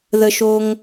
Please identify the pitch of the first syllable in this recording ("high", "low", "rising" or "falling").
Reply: low